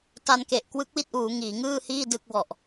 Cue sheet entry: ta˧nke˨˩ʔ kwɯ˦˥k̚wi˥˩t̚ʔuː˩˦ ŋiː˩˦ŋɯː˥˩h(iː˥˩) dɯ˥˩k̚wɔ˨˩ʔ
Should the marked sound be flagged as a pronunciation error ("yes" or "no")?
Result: no